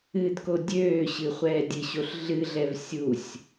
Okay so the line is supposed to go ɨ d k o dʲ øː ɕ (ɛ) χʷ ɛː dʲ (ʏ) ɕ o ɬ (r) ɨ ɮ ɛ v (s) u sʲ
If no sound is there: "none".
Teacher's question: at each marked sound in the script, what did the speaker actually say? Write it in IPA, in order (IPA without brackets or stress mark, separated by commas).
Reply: ɨ, ɨ, ɮ, sʲ